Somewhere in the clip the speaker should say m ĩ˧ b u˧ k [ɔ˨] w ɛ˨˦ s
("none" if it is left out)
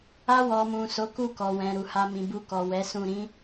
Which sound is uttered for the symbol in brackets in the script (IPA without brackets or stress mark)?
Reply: ɔ˨